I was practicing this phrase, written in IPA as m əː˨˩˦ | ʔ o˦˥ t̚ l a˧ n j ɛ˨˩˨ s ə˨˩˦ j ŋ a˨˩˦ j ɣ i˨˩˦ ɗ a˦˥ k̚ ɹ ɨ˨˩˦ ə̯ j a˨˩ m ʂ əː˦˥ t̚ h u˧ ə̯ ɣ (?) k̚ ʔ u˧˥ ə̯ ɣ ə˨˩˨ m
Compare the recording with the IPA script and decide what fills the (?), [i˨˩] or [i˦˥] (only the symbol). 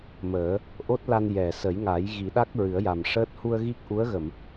i˦˥